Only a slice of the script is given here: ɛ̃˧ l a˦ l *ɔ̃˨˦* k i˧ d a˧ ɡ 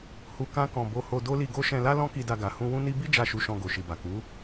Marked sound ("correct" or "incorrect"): incorrect